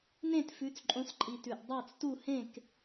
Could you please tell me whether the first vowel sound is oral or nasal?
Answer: nasal